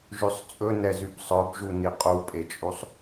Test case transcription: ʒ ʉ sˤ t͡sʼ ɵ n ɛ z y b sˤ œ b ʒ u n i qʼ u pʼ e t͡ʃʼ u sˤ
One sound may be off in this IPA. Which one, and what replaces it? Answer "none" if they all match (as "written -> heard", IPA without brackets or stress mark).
none